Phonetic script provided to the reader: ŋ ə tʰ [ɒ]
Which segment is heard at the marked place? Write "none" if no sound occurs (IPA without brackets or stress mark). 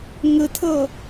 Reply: ʌ